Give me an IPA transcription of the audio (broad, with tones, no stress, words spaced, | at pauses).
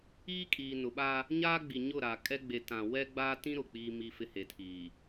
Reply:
iː˦kʼiː˨nʊ˨ɓa˦ | ɲaː˦ɡ͡bi˨ɲʊ˦˨ɾa˨ kʼɛ˦ɡ͡be˨ tã˨ wɛ˦ɡ͡baː˦tĩ˦ ɾʊ˨k͡piː˦ mi˦fɪ˦he˨tʰiː˨